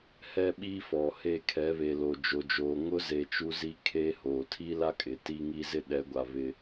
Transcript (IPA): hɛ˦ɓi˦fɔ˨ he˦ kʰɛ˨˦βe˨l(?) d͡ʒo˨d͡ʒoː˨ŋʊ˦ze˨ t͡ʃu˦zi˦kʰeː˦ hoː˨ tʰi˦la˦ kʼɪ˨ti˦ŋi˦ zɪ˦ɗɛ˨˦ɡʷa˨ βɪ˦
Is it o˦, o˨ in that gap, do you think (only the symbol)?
o˨